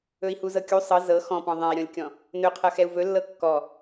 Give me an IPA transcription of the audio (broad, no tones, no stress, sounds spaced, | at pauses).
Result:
ɵ i̯ h u z ɤ kʲ u sˤ ɤ z ɤ x ɔ̃ p ɔ̃ ðˤ ɛ̃ i̯ ɾʲ ɔ̃ lʲ kʲ ɔ̃ | n ɵ qʰ ɤ x ɛ u̯ v ɵ lː ɤ kː ɔ